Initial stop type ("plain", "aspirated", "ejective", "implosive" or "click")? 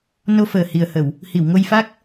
plain